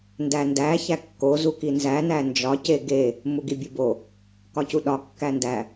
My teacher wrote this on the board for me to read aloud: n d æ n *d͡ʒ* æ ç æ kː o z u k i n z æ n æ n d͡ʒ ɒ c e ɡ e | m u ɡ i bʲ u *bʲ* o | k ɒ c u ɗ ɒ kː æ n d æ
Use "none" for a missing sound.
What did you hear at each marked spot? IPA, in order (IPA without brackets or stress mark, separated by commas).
d, b